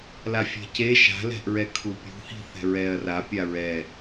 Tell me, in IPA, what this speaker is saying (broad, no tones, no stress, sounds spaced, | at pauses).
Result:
l a fʲ ɛ̤ c e ʃ a̤ l ɛ̤ ʔ ɹ ɛ kʰ u pʲ ṳ h i̤ θ ɛ̤ ɹ ɛː ɐ̯ r a pʲ a ɹ ɛ